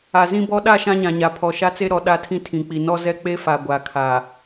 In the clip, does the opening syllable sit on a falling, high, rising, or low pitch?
low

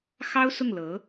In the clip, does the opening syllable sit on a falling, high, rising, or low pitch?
high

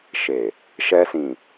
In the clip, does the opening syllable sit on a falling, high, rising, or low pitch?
low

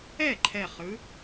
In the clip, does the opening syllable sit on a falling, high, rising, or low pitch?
falling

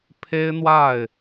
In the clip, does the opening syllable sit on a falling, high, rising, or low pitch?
high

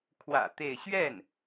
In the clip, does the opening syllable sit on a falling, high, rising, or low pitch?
low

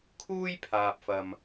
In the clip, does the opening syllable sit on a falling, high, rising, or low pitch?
high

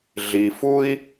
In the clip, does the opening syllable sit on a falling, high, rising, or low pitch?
low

